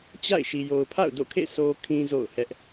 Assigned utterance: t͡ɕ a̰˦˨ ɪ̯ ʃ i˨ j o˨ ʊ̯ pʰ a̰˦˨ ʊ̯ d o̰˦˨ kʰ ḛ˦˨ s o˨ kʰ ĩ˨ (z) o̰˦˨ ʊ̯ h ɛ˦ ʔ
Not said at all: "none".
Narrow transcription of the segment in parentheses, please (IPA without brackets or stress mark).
z